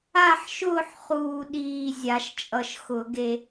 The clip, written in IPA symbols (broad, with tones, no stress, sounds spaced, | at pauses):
a˦˨ ħ ʃ ʊː˦˨ ħ χ uː˦˨ ɗ iː˦˨ zʲ a˧˩˧ ʃ t͡ʃʼ ʌ˦˨ ʃ x ʊ˧˩˧ ɡ e˦˨